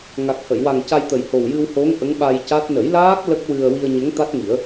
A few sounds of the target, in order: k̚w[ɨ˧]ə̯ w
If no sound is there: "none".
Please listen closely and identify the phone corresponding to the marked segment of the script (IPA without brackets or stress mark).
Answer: ɨ˧